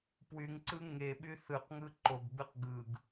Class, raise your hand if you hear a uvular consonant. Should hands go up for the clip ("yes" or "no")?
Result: yes